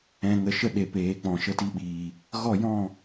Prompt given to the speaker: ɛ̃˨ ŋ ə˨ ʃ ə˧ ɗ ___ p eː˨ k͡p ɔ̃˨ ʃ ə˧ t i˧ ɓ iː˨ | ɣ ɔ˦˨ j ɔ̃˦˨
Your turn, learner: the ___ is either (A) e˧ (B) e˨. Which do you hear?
B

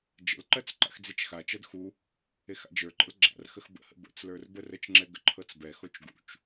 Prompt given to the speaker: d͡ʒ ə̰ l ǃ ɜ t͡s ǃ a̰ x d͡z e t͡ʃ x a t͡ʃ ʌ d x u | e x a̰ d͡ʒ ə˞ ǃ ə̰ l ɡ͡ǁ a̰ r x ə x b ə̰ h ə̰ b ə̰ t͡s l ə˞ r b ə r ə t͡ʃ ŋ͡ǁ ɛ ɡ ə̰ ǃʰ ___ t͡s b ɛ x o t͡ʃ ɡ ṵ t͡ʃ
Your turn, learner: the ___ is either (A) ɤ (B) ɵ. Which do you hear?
A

